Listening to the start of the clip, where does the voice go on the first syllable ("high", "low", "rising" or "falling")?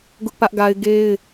high